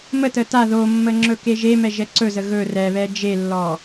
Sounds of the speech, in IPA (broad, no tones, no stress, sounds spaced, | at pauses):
m ə t ə t a ð o mː ə ŋ͡ǁ ɵ k e ʒ e m ɛ ʒ ɛ ǀ ɵ z ə ɣ ɵ r ɛ β ɛ d͡ʒ e lː ɔ